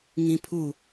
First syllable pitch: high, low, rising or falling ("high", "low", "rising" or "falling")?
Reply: high